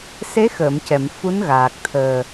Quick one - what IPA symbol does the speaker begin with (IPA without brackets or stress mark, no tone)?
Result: s